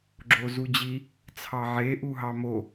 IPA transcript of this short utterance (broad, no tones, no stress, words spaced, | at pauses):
ɡ͡ǁozud͡ʑi | t͡sʰɑʕe ʔuɦɑmo